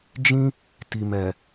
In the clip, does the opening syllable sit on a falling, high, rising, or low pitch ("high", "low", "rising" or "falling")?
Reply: high